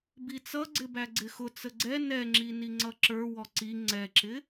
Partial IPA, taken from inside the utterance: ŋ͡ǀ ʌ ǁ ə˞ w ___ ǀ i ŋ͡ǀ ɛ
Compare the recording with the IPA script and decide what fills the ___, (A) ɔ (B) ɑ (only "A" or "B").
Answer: A